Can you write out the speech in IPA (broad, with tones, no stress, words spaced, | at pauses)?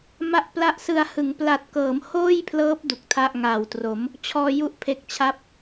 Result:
ma˦˥ʔpla˦˥ʔsɯ˧a̯ hɯ˩˦ŋ pla˨˩t̚kɤː˩˦mhoː˥˩jpʰlɤː˦˥p̚ du˨˩k̚tʰa˥˩ʔ ŋa˨˩w tro˩˦m | t͡ɕʰɔː˧ju˥˩ʔpʰe˨˩k̚t͡ɕʰa˥˩p̚